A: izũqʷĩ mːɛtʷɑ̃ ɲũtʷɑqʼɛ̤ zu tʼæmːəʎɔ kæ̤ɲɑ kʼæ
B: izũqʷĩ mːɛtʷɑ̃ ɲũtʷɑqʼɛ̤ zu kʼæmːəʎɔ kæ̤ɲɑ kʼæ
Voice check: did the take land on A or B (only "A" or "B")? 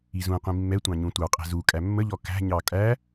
B